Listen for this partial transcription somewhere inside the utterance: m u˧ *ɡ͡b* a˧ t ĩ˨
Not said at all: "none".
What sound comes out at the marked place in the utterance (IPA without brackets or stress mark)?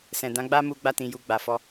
ɡ͡b